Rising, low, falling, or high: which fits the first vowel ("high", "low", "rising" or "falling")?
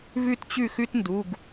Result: falling